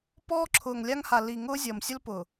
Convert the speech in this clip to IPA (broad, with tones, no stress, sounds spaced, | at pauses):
p ɔː˦ ǁʰ ʊː˨ ŋ lʲ a˦ ŋ h a˨ l i˨ ŋ ʊː˦ zʲ ʌː˨ m sʲ ʊ˦ l p ʊ˨